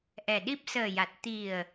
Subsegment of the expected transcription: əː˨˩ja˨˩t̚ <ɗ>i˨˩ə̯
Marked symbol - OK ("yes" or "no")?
no